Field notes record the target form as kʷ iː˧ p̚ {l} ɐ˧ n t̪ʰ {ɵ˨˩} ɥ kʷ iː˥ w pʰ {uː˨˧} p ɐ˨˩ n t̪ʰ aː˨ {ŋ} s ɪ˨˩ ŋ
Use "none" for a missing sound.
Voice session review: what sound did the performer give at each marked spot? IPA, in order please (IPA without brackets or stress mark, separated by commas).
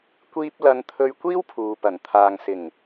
l, ɵ˧, uː˨, ŋ